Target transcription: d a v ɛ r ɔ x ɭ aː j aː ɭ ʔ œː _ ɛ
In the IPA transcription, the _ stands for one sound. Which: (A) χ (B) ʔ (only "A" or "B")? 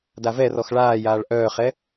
A